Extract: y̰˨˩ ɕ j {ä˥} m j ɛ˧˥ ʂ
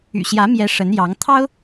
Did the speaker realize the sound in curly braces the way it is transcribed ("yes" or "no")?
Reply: no